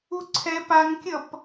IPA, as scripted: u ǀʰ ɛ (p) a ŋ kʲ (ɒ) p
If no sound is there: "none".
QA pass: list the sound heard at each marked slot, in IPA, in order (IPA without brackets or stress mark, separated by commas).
p, ʌ